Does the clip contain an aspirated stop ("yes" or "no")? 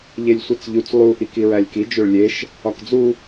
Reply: no